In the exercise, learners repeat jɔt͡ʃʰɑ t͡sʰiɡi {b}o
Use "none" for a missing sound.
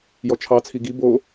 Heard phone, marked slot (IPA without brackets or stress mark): b